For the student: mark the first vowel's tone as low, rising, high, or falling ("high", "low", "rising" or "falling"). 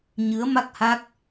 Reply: rising